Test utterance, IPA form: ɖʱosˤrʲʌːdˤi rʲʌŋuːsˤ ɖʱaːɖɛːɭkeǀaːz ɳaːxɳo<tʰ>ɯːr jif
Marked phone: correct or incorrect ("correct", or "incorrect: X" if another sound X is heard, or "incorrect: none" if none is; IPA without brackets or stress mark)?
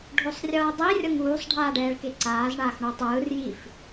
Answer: incorrect: tˤ